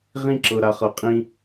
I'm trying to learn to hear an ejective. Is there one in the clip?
yes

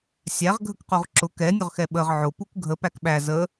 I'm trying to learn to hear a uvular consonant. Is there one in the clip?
yes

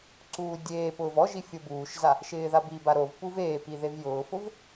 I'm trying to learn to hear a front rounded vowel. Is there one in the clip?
no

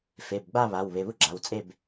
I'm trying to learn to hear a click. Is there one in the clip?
yes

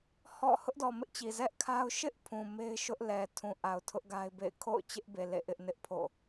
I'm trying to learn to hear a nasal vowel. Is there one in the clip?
yes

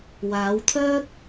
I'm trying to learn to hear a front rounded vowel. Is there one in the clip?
yes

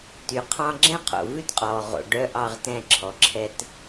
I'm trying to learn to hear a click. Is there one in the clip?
yes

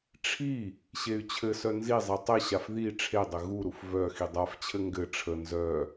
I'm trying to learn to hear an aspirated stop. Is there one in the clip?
yes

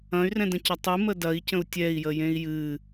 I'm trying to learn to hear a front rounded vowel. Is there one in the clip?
yes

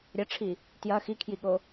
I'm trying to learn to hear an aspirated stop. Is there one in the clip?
yes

